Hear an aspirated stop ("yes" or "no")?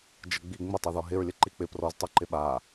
no